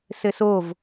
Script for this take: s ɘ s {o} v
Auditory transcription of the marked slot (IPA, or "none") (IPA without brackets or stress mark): o